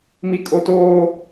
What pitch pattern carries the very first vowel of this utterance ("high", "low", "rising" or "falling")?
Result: high